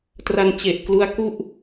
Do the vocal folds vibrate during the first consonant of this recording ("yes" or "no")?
no